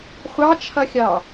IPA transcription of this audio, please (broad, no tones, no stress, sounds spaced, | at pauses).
χʷ ɑ t͡ʃʰ ʌ xʲ ɑ